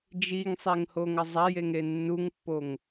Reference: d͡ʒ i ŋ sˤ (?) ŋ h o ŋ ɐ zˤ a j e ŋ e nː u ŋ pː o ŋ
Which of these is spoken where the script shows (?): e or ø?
e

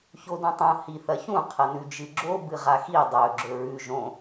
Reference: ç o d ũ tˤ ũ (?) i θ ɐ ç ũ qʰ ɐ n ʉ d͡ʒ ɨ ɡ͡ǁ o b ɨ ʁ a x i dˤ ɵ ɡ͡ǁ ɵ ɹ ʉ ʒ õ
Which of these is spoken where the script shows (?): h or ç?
h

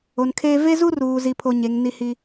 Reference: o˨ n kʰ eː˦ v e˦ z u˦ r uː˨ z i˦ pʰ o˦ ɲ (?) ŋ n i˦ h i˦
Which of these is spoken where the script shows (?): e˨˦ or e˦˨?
e˨˦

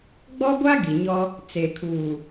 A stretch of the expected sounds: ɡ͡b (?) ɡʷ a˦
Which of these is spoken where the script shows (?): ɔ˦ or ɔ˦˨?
ɔ˦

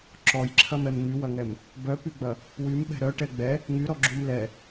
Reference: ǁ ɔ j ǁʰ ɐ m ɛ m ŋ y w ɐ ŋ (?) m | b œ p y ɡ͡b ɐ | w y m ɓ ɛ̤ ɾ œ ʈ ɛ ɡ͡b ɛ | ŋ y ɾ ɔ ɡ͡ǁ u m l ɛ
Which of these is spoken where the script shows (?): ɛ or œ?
ɛ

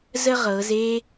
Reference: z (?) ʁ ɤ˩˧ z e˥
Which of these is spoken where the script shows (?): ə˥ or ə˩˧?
ə˥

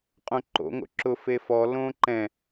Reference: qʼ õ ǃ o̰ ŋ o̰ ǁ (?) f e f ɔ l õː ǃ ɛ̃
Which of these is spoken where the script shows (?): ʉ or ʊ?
ʊ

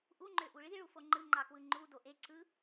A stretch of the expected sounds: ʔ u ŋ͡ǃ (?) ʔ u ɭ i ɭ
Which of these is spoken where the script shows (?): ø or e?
ø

